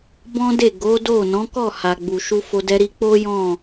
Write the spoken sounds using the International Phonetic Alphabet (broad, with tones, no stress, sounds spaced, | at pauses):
b ɔ̃˦ d e˦˨ ɡ o˨˦ d o˦˨ n ɔ̃˨˦ k ɔ˦˨ h a˨ ɡ͡b u˨ ʃ u˧ f o˧ d ɛ˦ ɾ i˦ k͡p o˦ j ɔ̃˦˨